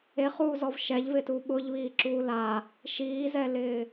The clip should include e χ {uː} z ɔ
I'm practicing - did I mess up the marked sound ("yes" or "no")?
no